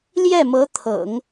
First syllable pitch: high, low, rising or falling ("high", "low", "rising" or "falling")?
falling